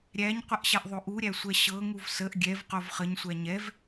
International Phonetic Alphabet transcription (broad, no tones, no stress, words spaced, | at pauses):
ɾʲæɲqʷəʔɕɛʔðˤo ʔuɾʲæsʷɛ ɕɤŋuv səʔ ɡʲɛvqov χəɲsʷæ ɲɛv